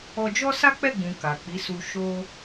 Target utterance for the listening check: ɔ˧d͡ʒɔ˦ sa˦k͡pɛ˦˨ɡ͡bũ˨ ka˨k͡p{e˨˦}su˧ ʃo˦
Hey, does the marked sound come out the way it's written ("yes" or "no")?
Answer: no